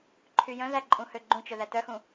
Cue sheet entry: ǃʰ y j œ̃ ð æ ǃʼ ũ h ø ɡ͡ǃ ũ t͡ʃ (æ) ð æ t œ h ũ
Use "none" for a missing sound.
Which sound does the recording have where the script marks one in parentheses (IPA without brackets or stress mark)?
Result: œ